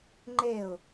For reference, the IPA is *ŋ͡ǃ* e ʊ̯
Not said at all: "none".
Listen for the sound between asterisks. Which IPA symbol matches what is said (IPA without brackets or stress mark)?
ŋ͡ǃ